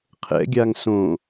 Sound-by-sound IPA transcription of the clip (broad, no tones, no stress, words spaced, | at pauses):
qʰɛ̰ɡʲaŋ sõ